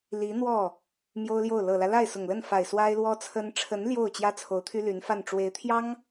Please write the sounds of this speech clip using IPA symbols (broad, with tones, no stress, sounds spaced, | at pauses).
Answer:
l i˧˥ n̪ w ɔ˥˩ | m j o˥ ʊ̯ l j o˥˩ ʊ̯ l ɤ˨˩ l ä˦ l a˥˩ ɪ̯ s ʊ˨˩ ŋ l ə˥˩ n f a˨˩ ɪ̯ s w a˥ ɪ̯ l w ɔ˥ t͡sʰ ə˥ n ʈ͡ʂʰ ə˧˥ n l j o˥˩ ʊ̯ t͡ɕ j ä˥ t͡sʰ o˧˥ ʊ̯ t̪ʰ y˥ l y˧˥ n f a˥˩ n ʈ͡ʂ w e˧˥ ɪ̯ t̪ʰ j ɑ˥ ŋ